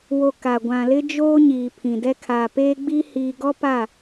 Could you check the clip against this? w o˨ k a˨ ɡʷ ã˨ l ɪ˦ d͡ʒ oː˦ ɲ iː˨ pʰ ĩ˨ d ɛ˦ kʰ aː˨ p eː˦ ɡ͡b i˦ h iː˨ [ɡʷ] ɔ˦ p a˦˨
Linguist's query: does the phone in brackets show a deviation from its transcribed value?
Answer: yes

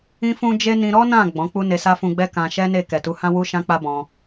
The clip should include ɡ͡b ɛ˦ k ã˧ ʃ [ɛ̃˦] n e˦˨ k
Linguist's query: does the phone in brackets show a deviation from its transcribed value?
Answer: yes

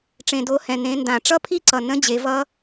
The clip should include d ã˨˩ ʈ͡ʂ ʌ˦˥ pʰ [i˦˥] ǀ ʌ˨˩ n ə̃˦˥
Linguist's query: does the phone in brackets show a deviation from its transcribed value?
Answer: no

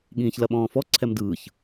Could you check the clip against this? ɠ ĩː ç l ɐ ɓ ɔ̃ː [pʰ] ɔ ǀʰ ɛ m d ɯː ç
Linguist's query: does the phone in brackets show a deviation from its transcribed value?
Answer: yes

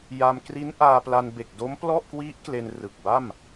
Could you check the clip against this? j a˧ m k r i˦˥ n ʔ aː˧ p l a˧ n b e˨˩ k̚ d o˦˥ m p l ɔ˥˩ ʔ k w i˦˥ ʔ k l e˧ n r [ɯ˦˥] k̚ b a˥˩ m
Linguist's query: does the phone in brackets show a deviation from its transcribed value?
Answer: yes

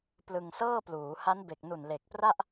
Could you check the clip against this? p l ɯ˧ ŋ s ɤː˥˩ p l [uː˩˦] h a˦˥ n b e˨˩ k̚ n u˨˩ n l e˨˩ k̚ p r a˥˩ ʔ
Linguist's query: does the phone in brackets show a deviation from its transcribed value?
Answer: no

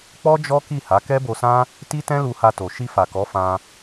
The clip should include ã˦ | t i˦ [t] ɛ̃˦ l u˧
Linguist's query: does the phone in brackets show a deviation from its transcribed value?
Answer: no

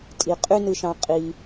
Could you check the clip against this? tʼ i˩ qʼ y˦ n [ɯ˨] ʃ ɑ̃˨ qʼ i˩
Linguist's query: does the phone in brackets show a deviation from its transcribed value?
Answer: no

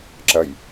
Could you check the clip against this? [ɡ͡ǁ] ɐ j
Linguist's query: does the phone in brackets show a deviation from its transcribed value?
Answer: yes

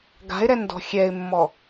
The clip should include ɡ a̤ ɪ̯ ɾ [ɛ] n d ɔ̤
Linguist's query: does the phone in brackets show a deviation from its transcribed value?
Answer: no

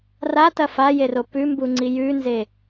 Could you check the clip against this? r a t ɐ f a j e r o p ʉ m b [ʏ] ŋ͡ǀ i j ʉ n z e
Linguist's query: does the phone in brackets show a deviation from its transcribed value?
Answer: yes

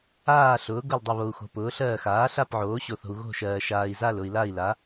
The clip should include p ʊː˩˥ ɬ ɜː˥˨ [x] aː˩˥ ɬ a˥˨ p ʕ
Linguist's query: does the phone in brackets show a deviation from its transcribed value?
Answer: no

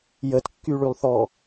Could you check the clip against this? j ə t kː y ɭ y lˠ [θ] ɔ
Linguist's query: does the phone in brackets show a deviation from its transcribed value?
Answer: no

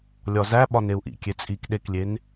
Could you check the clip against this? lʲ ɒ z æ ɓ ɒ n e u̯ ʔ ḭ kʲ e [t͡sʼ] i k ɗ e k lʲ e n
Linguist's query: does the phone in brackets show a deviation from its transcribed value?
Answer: no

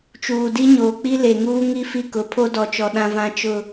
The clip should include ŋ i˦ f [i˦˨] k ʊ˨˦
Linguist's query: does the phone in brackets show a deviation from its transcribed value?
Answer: no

